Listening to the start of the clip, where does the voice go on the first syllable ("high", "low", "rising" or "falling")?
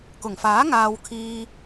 low